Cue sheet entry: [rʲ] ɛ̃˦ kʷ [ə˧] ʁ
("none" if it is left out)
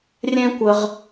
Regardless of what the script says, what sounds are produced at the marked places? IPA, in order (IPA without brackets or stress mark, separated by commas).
rʲ, ə˧